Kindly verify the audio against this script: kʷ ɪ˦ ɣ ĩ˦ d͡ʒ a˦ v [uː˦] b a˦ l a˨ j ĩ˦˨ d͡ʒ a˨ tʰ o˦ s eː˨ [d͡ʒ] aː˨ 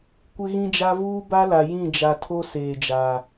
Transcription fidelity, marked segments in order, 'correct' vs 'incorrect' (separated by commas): correct, correct